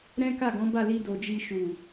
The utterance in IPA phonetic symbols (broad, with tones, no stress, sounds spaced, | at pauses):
ɾ ɛ̃˦ k a˦˨ ɡ ɔ̃˨˦ b a˦˨ l i˧ d o˨ d͡ʒ i˧ ʃ u˨